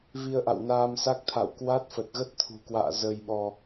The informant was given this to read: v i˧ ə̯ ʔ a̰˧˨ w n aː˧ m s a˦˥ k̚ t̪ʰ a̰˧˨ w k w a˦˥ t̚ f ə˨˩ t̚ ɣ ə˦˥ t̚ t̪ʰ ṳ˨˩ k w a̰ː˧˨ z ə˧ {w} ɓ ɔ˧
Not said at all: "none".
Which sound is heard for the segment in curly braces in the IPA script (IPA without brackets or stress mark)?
j